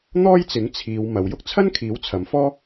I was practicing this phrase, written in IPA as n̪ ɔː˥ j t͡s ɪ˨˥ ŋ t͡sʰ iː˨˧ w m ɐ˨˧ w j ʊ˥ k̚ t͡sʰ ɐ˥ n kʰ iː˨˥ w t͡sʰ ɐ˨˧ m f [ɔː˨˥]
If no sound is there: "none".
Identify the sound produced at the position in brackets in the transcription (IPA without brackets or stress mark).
ɔː˥